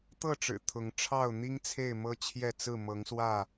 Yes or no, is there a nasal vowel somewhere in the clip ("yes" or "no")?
no